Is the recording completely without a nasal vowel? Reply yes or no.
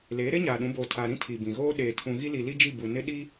no